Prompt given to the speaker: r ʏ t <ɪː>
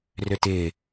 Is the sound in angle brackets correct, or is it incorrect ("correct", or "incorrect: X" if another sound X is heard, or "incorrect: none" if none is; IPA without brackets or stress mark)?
correct